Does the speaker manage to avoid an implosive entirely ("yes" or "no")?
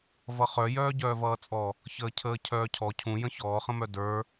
yes